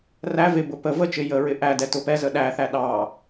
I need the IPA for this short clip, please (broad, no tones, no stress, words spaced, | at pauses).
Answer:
ræ vɪbʊ pə vət͡ʃɪ jəɹɪ ʔæ dɛtʊpɛzə ɗæθæ ɗɑ